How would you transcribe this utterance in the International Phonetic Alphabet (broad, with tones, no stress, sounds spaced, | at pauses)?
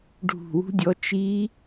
ɖʱ ṳ˧˩ w ṳ˦˥ dʲ ɔ˨˥ t͡ʃ i˦˥